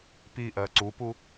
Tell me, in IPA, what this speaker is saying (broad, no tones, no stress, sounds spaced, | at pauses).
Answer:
p i ʔ ɜ ǀ u p u